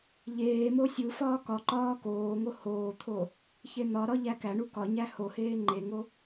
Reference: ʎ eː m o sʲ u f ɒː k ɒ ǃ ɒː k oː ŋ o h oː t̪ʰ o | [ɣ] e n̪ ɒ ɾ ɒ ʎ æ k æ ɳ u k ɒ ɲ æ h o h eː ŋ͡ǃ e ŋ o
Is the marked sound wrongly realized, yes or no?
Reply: yes